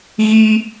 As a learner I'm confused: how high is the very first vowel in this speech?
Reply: high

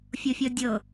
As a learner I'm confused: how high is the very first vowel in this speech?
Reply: mid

